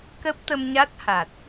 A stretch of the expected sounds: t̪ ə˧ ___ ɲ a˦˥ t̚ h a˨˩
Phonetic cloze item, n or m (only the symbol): m